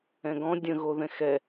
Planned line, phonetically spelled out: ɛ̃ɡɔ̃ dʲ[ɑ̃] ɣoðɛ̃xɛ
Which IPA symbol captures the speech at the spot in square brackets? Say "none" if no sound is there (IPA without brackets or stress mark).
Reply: ə̃